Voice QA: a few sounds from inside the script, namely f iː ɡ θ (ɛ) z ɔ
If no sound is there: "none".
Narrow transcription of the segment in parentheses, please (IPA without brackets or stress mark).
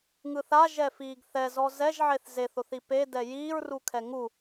ɛ